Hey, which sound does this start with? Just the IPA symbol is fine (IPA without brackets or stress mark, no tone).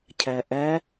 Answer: cʰ